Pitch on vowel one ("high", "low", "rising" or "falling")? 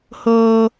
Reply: high